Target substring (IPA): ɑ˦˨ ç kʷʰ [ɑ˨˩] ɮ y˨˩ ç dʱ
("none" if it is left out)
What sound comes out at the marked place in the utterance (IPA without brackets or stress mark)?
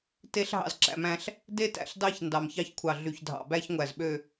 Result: ɑ˨˩